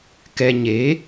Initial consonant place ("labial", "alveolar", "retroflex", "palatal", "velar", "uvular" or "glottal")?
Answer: velar